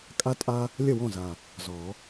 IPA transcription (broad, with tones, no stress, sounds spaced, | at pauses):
kʼ a˥ tʼ a˥ | lʲ ə˥˩ w ɔ̃˥˩ z a˨˩ | z ɔ˨˩˦